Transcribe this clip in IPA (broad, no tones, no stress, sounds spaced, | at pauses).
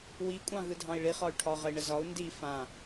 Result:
w i kʷʼ ɑ̃ ɣ ɯ dʱ ɑ̃ i̯ ɭ i χ ɒ y̯ ʈʰ ɒ ʁ ə i̯ ɳ ə z ɒ u̯ n d i f ã